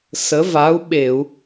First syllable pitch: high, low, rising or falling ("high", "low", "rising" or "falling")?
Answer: rising